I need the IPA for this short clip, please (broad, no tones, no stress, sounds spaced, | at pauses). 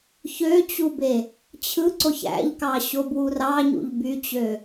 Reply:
ç ø t͡ɕ u b e | t͡ɕʰ ɯ ǀ o ç æ̰ ʎ k ɑ ɕ o b w u r ɑ ɲ ṵ ʎ b y t͡ɕ ø